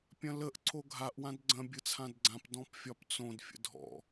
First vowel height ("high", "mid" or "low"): low